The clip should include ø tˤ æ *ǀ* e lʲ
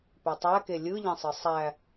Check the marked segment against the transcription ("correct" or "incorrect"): incorrect